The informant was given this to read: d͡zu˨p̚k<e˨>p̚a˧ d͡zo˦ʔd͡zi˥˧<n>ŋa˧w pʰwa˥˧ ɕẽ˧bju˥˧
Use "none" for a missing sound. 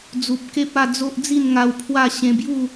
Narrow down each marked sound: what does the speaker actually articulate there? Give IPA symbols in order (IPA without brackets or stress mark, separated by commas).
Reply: e˦, n